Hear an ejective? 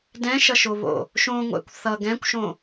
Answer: no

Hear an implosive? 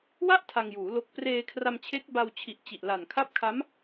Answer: no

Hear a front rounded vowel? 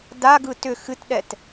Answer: yes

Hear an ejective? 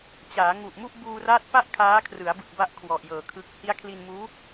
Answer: no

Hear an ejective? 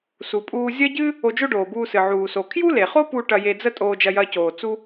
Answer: yes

